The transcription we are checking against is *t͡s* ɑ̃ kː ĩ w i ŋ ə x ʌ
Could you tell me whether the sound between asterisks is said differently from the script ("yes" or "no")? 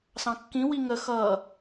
yes